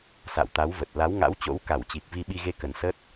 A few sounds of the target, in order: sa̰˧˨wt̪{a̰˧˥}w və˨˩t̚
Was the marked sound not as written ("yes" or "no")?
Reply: yes